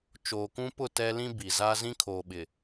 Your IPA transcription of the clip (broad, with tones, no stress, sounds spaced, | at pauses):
t͡ʃ oː˨ k ũ˦ p ʊ˦˨ t ɛ˦ l ĩ˦ b i˨ z a˦ z ĩ˦ kʰ oː˨ ɓ ɪ˨